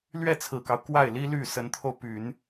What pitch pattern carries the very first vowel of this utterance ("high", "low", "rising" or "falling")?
falling